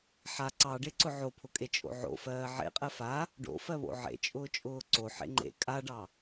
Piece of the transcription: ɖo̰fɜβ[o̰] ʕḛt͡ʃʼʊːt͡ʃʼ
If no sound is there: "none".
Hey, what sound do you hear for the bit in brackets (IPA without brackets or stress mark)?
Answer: o̰